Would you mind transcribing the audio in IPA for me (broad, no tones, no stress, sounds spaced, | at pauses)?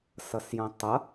s ʌ s j õ tˤ ʌ